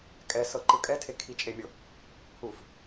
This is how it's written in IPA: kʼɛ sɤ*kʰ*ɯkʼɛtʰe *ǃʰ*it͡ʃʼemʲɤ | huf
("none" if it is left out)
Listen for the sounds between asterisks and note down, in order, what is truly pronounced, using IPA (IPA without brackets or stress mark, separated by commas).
ǃ, kʰ